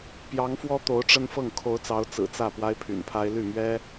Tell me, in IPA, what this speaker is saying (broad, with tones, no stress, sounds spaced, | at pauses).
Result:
p j ɑ˧˥ ŋ f w ɔ˥ t̪ o˧˥ ʊ̯ ʈ͡ʂ ə˥ n f ɤ˥˩ ŋ kʰ o˧˥ ʊ̯ t͡s ɑ˧˥ ʊ̯ t͡s ɹ̩˨˩ t͡s ä˥˩ p w a˥ ɪ̯ pʰ y̰˨˩ n pʰ a˥ ɪ̯ l y˥˩ m ɥ ɛ˥